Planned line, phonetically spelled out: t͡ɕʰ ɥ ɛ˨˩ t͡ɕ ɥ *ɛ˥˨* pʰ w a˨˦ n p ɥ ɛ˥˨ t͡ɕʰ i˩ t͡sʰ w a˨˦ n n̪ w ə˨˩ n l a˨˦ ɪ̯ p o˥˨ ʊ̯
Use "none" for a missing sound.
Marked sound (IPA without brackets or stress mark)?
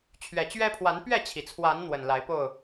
ɛ˦